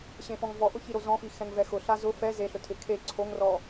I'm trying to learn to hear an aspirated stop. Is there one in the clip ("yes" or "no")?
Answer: yes